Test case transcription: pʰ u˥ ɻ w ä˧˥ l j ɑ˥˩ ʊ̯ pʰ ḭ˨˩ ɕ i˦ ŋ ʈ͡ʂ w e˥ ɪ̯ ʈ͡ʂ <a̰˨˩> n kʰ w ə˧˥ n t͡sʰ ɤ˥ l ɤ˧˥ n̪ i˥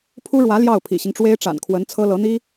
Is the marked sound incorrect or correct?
correct